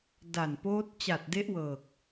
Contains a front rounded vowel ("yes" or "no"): no